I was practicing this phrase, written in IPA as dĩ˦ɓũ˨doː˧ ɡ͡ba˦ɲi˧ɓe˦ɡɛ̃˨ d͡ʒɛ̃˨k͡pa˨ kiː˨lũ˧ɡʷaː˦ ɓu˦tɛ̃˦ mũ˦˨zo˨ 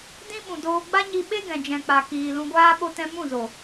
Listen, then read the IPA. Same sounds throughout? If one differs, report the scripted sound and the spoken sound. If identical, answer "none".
u˦ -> o˦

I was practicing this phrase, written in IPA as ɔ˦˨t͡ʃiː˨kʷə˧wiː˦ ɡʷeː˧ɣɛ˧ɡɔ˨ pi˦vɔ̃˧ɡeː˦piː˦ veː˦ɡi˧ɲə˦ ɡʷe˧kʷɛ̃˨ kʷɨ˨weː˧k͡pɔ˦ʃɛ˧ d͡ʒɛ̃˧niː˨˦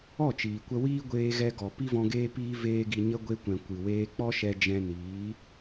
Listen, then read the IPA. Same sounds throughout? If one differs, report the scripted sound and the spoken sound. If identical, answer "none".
none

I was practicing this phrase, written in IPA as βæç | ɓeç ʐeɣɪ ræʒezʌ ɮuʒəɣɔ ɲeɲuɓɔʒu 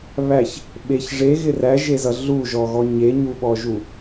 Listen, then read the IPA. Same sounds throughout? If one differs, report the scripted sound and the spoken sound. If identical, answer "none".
ə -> ɔ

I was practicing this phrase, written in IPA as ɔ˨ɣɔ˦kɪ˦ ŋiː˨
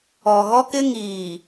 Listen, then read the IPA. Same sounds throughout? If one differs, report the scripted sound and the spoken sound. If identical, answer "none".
none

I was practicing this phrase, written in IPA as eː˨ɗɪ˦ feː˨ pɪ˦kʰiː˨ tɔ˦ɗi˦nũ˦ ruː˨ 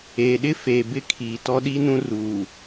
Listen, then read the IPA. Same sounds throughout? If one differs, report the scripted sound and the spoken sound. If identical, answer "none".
p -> b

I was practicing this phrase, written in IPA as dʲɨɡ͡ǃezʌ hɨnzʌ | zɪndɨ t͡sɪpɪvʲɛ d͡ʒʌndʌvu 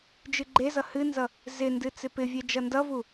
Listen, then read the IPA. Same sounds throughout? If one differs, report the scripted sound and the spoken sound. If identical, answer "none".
dʲ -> d͡ʒ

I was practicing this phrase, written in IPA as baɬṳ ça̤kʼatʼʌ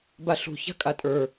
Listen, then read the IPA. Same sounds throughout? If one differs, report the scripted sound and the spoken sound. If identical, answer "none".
ʌ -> ə˞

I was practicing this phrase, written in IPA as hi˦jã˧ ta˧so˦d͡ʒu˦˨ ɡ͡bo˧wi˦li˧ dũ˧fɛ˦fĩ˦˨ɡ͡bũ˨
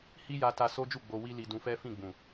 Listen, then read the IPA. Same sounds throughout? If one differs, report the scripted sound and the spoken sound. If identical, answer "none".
ã˧ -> a˧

